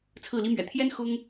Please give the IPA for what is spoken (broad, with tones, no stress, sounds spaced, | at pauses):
t͡sʰ ɹ̩˥˩ l i˥ m ɥ ɛ̰˨˩ t̪ʰ j ɛ˥ n x ʊ˥ ŋ